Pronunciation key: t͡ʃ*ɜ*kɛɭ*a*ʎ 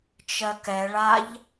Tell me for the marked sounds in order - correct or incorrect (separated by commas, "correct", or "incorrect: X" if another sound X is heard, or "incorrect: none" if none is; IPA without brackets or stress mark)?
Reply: correct, correct